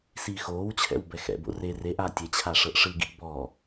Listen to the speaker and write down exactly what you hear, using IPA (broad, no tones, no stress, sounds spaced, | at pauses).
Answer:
s iː x oː w t͡ɕʰ ɛ̰ w b ɛ x ɛ̰ b o̰ r e r e ʔ a tʲ e t͡ɕʰ a ʂ ɤ ʔ ʂ ɯ ɡ ḭ ʔ b ɔ